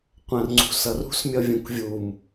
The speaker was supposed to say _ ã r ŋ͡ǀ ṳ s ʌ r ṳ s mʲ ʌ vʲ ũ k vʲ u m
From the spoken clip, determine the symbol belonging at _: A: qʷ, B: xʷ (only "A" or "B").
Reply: A